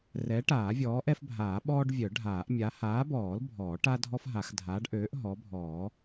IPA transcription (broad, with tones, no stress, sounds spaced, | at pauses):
r ɛ˨˥ ʈ aː˨˩˦ vʲ ɔː˨˥ ʔ ɛ˦ f bʱ aː˨˩˦ ɓ ɔː˦ ɖ vʲ œ˨˩˦ ɖʱ aː˨˩˦ ʔ mʲ a˨˥ h aː˨˥ b ɔː˨˩˦ l bʱ ɔː˨˩˦ ʈ a˦ dʱ ɔ˦ f ɦ a˨˩˦ x dʱ aː˨˥ ɖ ʔ øː˨˥ ʔ ɦ ɔ˨˥ bʱ ɔː˨˩˦